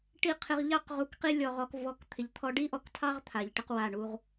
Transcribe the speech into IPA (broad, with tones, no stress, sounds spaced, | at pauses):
ʈ i˦˨ qʰ ɪ˧ ʁ ʎ ɑ˦ q ʁ u˧ k q i˦ lʲ ɔ˧ ʁ ɔ˧ k v ɔ˧ k t̪ʰ ɪ˨ ʎ t̪ʰ ɔ˧ ɖ i˦ ʔ ɔ˧ k tʰ ɑ˦ ʁ t̪ʰ a˨ ʎ ʈ ɪ˧ q w a˦˨ ɳ u˦ ʁ